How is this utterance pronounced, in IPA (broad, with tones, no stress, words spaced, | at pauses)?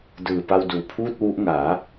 dɯː˨˩pa˧wduː˨˩ pʰuː˥˩t̚wu˦˥ʔŋaː˩˦